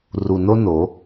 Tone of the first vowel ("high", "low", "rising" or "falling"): low